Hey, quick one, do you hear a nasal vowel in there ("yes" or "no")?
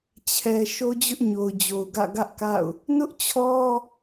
no